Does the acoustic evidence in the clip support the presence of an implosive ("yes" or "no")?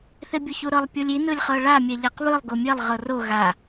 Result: no